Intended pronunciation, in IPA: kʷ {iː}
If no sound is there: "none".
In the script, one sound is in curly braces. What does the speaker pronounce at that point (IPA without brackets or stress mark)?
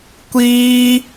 iː